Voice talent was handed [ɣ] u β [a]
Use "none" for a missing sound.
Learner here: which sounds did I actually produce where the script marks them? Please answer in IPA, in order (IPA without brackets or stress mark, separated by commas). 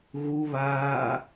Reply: ɣ, aː